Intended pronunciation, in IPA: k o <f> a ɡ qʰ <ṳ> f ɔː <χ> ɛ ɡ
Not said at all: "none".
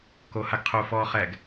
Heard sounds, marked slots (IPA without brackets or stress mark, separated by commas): h, u, χ